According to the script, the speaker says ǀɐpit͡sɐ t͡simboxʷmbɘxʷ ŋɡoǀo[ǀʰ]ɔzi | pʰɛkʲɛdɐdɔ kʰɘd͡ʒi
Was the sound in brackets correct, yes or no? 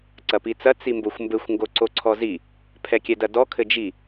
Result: yes